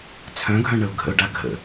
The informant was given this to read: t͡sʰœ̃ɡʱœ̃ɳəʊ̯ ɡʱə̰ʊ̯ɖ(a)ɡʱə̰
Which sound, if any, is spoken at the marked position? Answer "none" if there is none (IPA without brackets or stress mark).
a